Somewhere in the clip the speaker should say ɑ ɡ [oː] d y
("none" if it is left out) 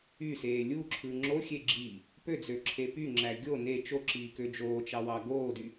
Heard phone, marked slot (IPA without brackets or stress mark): oː